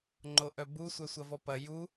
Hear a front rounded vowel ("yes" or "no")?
yes